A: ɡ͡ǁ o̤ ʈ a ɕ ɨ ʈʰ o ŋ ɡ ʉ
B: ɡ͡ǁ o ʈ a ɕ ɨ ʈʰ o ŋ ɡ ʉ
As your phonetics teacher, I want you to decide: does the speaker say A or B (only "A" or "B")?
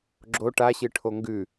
B